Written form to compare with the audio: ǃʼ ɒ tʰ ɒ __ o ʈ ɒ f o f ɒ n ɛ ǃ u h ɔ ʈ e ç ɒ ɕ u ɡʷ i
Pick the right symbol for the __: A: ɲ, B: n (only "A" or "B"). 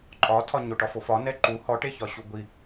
A